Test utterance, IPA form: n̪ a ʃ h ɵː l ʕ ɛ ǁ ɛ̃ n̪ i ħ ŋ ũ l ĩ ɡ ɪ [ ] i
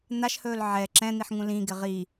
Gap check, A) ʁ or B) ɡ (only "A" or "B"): A